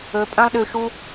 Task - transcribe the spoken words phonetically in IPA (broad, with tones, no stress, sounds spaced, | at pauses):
ɵ˧ pʼ ɐ̃˦ lˠ ɗ ʉ˧ ʃ u˦